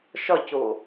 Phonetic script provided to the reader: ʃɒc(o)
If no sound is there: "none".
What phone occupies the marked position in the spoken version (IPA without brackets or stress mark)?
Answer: o